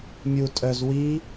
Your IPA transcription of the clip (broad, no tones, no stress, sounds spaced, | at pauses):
mʲ u tʼ œ z w i